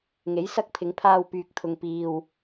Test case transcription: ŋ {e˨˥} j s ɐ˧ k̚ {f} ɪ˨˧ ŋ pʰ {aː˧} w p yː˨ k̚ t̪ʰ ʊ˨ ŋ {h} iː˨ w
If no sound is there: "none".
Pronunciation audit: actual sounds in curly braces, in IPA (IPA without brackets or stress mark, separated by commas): e˨˥, pʰ, aː˧, p